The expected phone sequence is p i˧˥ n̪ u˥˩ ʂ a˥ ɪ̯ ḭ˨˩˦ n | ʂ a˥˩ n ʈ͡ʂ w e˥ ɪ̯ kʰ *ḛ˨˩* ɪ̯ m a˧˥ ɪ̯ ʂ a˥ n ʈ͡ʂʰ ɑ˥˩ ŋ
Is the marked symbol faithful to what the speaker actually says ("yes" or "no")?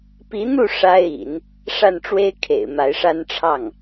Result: yes